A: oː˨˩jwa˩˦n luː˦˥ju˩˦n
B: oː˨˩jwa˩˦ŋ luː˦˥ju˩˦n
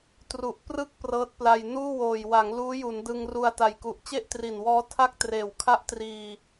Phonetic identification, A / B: B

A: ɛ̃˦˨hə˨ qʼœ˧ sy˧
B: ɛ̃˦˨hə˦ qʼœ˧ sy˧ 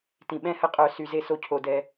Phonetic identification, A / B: B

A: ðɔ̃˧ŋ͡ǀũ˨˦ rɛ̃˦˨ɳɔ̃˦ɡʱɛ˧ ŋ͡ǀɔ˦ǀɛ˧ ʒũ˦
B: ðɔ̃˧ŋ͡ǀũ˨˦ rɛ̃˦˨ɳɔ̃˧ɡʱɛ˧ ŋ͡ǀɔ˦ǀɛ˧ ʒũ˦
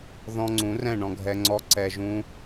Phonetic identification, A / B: B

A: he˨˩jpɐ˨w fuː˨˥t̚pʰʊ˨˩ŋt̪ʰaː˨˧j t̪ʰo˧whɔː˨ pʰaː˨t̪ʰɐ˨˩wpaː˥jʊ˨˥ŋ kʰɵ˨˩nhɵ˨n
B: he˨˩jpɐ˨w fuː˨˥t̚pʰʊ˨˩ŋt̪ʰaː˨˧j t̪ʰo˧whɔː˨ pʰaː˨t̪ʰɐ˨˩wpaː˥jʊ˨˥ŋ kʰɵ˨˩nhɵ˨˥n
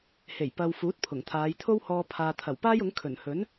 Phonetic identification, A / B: B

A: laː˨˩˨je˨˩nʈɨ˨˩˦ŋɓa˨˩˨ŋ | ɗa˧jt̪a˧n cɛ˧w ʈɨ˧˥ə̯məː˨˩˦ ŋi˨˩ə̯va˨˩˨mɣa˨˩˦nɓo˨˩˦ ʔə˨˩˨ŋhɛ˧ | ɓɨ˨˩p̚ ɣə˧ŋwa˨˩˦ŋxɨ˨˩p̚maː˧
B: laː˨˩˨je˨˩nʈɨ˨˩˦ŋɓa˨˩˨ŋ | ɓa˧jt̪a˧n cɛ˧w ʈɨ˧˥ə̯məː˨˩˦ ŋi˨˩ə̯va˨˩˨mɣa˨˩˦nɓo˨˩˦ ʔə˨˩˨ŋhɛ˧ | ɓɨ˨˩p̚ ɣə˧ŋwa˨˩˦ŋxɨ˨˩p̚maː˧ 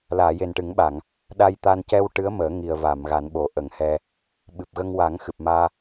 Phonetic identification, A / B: A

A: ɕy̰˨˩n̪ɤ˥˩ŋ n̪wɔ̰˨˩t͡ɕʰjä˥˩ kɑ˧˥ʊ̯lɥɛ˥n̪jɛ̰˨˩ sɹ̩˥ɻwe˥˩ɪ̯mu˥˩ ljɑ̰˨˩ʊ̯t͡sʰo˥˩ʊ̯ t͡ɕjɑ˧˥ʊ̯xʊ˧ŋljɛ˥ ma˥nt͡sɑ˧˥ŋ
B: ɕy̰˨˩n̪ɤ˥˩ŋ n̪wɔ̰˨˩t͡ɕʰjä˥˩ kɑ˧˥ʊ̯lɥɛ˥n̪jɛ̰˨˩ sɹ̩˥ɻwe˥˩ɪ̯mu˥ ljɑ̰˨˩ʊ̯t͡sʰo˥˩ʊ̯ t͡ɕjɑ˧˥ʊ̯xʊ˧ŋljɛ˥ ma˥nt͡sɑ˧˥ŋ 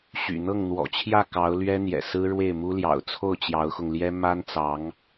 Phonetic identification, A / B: B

